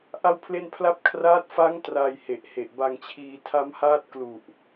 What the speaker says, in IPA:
ʔa˥˩wpʰle˥˩npʰla˥˩p̚ kʰraː˦˥t̚fa˦˥ŋ traː˧j he˨˩ʔhe˨˩ʔ ba˧ŋt͡ɕʰiː˧ tʰa˦˥mhaː˥˩t̚klu˨˩ʔ

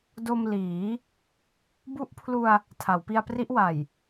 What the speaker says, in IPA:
do˧m liː˩˦ | bu˦˥ʔpʰlu˧a̯ | tʰa˩˦wpi˧a̯pri˦˥ʔ wa˨˩j

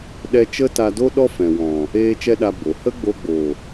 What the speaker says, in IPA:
ɗɛ˦ t͡ʃə˦ta˧do˦ ɗɔ˦fɛ̃˨wɔ̃˨ | eː˦t͡ʃɛ˦ɗa˧ bo˨ hə˦ɡ͡bo˧ɡ͡bo˨

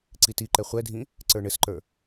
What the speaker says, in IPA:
ǀitiǃɛ χʷɛdʱĩ | ǀə˞ɳɘsǃə˞

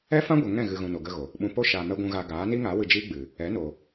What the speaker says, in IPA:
ɛ˦fã˦ɡʷə˨ ŋɛ̃˦˨ɣɨ˨ ɣũ˨ no˨ɡə˧ɣo˨ | ɓũ˨po˦ʃaː˨mɛ˧ ɡʷũ˨ɣaː˨ ɡaː˨˦ni˦ŋa˨˦ wɨ˧d͡ʒiː˦ɡ͡bɨ˨ | ɛ˨˦no˨

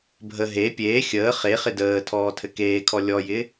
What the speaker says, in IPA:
bʱə ɦe pʲeː xʲəː χe χɪdəː tʰɔːtʰɘkeːkʰɔ lʲɔjɪ

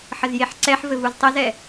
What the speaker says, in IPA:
ħəzjeħǀɛħ vɘvuztˤɘzɛ

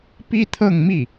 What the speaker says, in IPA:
pi˥t̪ʰɤ˥˧ŋmi˥˩

